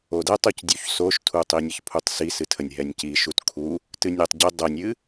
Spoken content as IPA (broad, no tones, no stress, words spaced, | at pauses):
odɛtˤ ocdʲuçsoʃtʰu tˤinʲəçpʰutˤsi sɨtʰənʲɦɛnʲci ʃutkʰu | tɨnʲɛtˤɟə dˤənʲɨ